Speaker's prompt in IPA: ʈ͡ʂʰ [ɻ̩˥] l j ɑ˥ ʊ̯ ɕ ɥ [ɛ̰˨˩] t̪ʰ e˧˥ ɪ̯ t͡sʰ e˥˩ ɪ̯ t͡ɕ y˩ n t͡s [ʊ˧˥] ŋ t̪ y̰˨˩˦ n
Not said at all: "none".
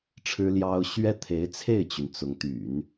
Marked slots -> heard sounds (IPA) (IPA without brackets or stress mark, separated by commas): ɻ̩˥, ɛ˥, ʊ˧˥